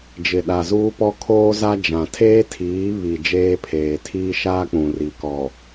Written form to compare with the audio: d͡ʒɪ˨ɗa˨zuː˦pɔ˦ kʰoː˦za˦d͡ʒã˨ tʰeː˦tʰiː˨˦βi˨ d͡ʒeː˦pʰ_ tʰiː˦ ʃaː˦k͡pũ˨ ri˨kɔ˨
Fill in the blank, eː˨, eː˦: eː˨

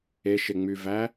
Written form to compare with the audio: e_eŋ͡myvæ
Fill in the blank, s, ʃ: ʃ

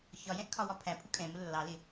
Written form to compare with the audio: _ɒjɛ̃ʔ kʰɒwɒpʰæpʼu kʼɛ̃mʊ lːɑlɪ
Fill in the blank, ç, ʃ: ç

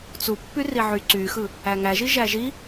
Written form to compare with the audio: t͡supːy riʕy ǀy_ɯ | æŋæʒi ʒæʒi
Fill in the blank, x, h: x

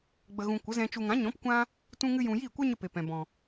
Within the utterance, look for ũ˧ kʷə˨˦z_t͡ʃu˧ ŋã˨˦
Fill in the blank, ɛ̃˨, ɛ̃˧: ɛ̃˧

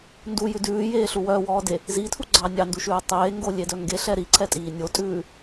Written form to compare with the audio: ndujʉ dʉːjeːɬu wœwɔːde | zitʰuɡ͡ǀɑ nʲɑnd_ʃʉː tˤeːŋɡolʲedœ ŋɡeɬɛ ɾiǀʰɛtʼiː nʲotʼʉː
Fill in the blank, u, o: u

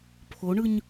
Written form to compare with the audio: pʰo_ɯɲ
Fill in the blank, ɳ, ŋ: ɳ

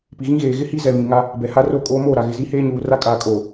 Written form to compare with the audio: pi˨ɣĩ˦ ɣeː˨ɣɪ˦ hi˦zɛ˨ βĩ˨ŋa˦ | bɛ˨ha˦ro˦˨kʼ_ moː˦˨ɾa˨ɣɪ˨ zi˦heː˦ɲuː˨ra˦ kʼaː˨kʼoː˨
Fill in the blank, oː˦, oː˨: oː˦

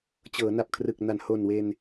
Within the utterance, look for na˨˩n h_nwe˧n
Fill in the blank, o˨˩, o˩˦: o˨˩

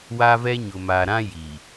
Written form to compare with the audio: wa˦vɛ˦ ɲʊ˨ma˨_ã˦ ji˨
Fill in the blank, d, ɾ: ɾ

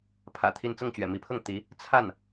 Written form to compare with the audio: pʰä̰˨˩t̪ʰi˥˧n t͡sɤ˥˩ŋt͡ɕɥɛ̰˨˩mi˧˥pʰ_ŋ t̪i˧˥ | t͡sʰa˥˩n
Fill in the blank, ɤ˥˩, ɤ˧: ɤ˥˩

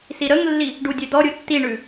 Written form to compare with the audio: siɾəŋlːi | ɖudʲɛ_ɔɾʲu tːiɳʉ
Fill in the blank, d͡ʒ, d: d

